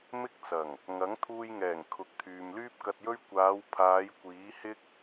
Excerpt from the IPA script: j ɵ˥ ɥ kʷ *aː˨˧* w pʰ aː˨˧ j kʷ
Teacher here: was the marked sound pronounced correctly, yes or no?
yes